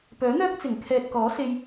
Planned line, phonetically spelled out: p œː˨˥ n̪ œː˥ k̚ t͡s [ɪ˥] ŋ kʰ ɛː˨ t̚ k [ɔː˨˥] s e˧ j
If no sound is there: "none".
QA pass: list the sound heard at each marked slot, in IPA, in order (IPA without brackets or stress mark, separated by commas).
ɪ˨˩, ɔː˨˥